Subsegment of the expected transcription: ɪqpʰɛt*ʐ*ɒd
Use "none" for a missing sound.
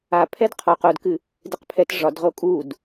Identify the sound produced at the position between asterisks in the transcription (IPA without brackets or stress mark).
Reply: ʐ